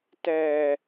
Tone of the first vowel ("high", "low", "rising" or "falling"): low